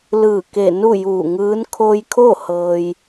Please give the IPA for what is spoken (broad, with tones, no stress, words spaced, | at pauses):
lɯː˧˩ ke˧˩ nu˥˨juː˧˩ŋɯː˧˥n kʰo˧jkʰo˥˨ hɤː˧j